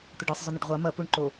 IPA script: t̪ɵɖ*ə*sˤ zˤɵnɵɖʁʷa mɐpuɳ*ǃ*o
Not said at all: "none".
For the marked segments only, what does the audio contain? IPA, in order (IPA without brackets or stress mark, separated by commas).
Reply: ɨ, ǃ